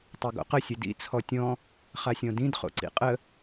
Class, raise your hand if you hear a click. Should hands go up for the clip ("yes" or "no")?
yes